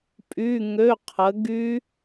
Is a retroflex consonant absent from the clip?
yes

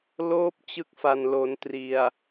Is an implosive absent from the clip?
yes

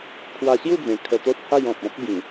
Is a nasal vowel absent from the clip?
no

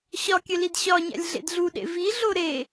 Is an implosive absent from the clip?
no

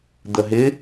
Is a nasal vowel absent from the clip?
yes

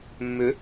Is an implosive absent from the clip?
yes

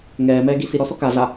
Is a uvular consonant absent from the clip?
yes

